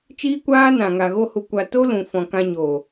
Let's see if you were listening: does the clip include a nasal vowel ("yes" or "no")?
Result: yes